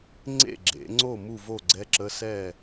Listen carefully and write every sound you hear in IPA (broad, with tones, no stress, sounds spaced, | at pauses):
ŋ͡ǀ ḛ˥˩ ɡ͡ǁ ḛ˩˥ ŋ͡ǀ o˥˩ m u˥˩ v o˥˩ ɡ͡ǀ ɛ˧˥˧ ǁ ə˧˥˧ s ɛ˥˩